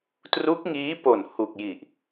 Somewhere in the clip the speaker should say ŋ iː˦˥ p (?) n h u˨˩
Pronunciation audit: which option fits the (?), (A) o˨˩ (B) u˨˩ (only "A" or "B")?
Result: A